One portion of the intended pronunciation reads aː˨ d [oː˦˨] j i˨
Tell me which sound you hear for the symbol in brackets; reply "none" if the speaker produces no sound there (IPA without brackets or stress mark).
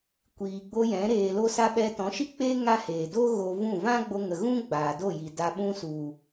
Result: o˦˨